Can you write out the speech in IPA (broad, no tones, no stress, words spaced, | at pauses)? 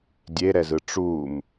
dʲeɾɛzɯ ʈ͡ʂum